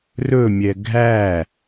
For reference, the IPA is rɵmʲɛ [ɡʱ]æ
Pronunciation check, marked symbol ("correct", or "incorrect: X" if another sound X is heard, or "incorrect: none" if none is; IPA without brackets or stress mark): correct